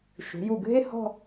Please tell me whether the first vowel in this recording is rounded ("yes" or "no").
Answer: yes